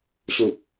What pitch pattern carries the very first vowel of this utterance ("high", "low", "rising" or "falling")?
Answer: low